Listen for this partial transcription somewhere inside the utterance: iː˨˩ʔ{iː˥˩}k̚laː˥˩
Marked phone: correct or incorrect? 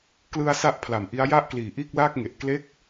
correct